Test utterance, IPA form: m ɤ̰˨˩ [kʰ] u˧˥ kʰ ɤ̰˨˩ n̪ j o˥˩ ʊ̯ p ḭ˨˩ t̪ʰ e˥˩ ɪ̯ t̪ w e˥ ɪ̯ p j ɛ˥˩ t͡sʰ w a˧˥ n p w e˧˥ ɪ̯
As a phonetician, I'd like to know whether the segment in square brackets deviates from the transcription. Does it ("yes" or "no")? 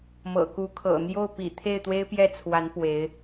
yes